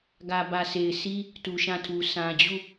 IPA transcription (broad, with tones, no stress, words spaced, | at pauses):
ɡä˨bä˨sʰe˨ɪ̯sʰi˦ | tu˨ʃã˦˨tʰu˨ sã˨d͡ʑu˦˨